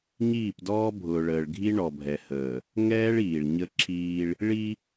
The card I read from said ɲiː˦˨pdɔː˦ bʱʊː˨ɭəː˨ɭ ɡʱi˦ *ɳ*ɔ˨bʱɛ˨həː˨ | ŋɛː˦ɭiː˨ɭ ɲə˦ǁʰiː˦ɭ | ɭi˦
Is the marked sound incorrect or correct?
correct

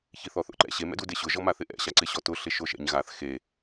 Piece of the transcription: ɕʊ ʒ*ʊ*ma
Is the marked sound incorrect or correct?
incorrect: ɔ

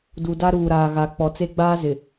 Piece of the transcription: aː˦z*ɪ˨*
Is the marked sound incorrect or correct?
correct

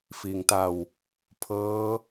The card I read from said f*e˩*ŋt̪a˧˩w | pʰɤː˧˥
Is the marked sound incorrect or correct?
incorrect: i˩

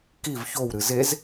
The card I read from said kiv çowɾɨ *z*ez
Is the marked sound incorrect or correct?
correct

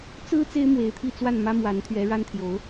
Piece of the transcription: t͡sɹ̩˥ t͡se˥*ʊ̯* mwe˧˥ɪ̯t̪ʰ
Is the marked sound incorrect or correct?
incorrect: ɪ̯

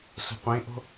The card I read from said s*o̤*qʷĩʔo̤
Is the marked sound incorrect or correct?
correct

